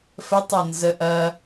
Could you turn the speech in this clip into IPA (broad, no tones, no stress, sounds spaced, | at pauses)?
f ə tˤ ɤ n z ə ʔ ɐ